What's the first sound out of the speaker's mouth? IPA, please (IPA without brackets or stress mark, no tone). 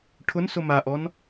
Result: ʈʰ